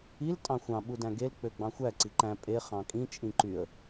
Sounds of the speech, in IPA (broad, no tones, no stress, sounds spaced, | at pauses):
i l tʼ ɑ̃ xʷ ɑ̃ ɓ u d æ̃ ɡ e l k͡p ø ɡ͡b ɑ̃ xʷ æ ǀ i ǃ æ̃ pʼ e χ ɑ̃ kʼ ĩ t͡ʃʼ ĩ ǃ y ə̯